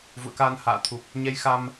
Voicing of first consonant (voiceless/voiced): voiced